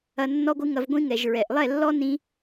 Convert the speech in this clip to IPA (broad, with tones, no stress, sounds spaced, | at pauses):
ɐ˧ nː ɔ˦ ɡʷ ɨ˦ ŋ ɐ˧ v ɡʷ ĩ˦ ŋ ɛ˨ ʒ ɹ ɛ˨ ʔ lˠ ɛ˦˨ lː ɔ˦ n ĩ˧